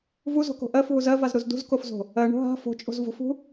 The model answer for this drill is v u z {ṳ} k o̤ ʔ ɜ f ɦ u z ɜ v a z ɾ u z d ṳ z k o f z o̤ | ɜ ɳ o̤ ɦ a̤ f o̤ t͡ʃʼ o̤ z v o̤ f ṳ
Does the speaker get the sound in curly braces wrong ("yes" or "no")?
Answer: yes